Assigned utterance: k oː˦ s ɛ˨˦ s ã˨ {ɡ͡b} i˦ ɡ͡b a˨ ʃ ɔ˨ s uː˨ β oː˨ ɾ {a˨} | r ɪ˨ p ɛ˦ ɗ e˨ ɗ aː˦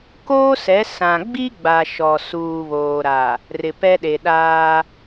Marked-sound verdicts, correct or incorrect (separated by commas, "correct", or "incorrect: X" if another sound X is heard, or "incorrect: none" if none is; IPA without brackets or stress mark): correct, correct